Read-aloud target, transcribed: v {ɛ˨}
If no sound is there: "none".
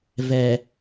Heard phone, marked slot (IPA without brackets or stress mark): ɛ˨